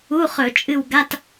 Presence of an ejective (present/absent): present